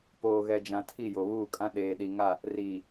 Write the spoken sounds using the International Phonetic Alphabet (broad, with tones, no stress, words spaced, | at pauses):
poː˨ɣɛ˨d͡ʒã˨ tʰi˦˨jo˨βuː˦˨kʼã˦ ɗeː˨ɗi˨ŋa˦˨ | riː˨